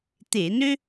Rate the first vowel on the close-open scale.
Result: mid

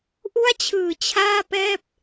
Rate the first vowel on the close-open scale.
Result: close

